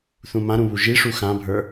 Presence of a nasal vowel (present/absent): present